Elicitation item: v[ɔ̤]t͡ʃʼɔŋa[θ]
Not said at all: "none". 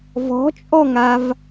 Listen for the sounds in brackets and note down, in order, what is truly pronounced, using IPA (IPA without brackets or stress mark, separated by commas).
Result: ɔ̤, v